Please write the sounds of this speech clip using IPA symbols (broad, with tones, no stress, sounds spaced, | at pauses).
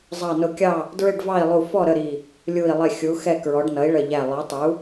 zˤ ɑ˧˩ n ʊ˧˩ kʲ ɑ˥˨ | d ɹ ɪ˥˨ ɖ v ɑ˥˨ i̯ lˠ u˧˩ f ɔ˥˨ ɾ ə˥˨ ɾ i˧˩ | lʲ u˧˩ i̯ lˠ ɪ˧˩ xʲ u˩˥ x ɛ˥˨ k ɹ ɔ˩˥ ɖ n ʌ˩˥ i̯ ɭ ə˧˩ ʎ æ˧˩ lˠ ə˞˩˥ tˤ u˩˥